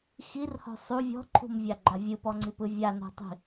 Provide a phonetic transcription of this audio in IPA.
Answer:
xirhɔ̤ sˤu vʲɔ̤ǃʰṳmvʲaɡ͡ǃa vʲɯpɔŋ͡ǀipɯ vʲano̤tˤi̤

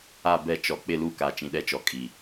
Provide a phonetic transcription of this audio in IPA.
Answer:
a˦˨bɛ˦˨t͡ʃɔ˨ k͡pɪ˦˨lu˦˨ka˨ t͡ʃĩ˨ɗɛ˦t͡ʃɔ˨ kʼi˨

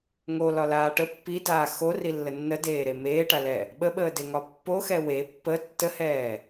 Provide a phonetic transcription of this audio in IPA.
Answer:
ŋolɒlaː ʈə pːidaː xorilːə nːədeːɾe meːʈalɛ | ɓəɓəːdeŋɒ pːoxɛ we pːə tːəhɛː

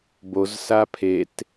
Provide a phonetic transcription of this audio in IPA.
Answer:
bozsa pʰet

